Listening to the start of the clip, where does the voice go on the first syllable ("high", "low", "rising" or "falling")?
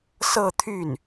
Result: falling